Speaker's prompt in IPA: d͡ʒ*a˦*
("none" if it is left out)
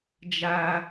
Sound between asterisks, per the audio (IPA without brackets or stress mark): a˦